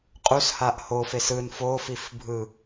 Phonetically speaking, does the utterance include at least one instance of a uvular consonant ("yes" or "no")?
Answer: yes